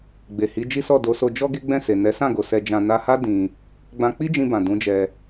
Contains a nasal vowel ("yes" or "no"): yes